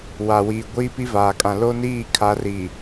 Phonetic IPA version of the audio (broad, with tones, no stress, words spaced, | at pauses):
wa˨wiː˨ ɡʷiː˦pi˦vaː˨kʼã˨ lo˦niː˦˨kʰa˨˦ri˨